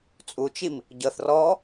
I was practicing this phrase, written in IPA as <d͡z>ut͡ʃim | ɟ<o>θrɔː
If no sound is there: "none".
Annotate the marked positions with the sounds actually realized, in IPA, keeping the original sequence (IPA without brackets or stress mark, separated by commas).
t͡sʼ, ɤ